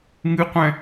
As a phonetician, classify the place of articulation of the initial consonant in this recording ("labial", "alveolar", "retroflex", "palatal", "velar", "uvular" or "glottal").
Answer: velar